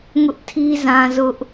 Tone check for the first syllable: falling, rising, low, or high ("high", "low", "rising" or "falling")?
high